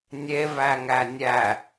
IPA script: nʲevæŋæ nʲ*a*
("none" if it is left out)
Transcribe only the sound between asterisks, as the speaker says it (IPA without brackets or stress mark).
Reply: æ